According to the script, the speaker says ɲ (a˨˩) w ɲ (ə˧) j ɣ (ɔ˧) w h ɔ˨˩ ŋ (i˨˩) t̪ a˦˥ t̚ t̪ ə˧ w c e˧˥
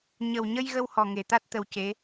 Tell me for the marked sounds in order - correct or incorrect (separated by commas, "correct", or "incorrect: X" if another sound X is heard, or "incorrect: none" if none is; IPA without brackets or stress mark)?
incorrect: ə˨˩, correct, incorrect: ə˧, incorrect: e˨˩